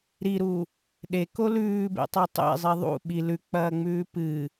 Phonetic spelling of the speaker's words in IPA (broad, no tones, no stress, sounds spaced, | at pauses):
ɾ i ɾ u | ɗ e k o l ʉː b ḛ tˤ o tˤ ḛ zˤ i ðˤ ṵ ɓ i l ʉ k͡p ɐː ŋ͡m ʉː p ɨ